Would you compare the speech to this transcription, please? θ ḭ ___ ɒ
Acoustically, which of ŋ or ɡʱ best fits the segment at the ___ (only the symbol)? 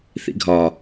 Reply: ɡʱ